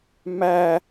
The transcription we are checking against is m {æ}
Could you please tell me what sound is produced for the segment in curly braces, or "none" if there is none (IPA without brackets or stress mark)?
æ